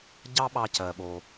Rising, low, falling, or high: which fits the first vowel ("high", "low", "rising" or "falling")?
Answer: high